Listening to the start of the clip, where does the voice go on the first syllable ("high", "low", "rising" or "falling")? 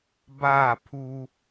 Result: falling